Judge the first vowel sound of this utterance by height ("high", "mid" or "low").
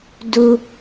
high